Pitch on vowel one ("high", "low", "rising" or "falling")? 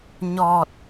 low